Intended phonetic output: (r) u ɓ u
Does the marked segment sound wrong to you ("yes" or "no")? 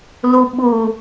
yes